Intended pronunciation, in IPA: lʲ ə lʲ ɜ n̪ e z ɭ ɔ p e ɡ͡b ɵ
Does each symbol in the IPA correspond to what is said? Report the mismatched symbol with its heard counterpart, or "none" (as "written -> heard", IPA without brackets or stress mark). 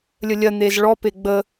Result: ɵ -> ə